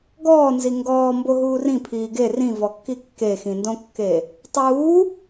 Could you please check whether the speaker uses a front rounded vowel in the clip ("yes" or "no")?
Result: no